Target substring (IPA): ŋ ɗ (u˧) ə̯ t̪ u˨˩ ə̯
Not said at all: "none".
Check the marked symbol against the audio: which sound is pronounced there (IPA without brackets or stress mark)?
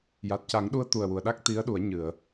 u˧